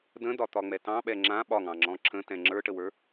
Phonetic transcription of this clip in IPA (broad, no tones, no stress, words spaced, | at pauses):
də̃dɒt̪ɒŋ͡mɛ tɑ̃ɓɛ ŋ͡ǁã ɓɒŋɑ̃ŋ͡ǁɔ̃ ǁə̃tɛ̃ ŋ͡ǁə˞ʈəwə˞